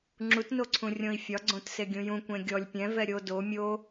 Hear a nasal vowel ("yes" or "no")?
yes